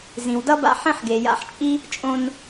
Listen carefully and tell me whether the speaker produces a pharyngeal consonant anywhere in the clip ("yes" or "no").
yes